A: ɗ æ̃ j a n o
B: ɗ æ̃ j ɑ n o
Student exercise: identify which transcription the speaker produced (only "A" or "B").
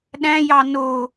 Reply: B